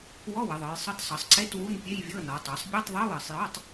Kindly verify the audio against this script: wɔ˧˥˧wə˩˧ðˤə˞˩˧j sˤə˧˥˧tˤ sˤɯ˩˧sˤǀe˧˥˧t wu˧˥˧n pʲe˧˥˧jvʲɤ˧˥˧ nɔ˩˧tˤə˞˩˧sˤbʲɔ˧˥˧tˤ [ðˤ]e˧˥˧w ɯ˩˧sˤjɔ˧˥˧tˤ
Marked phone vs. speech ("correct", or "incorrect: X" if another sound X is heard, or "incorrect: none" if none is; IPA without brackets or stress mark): correct